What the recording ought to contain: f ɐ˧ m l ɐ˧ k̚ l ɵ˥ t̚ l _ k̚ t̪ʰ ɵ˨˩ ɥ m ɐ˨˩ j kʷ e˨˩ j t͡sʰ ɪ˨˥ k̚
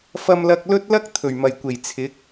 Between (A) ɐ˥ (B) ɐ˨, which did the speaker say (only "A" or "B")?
A